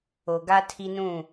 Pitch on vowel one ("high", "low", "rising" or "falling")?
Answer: low